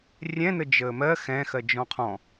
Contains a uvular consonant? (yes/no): yes